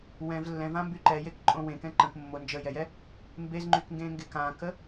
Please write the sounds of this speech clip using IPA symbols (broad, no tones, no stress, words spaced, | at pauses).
wɛ̃v lːɛ̃vãmby ǃɛjekǃʼõ wẽkɛ̃ ǃə̃k mːo nd͡ʒəjɛjɛ | mbezŋ͡ǃykŋɡẽŋɡek ãkə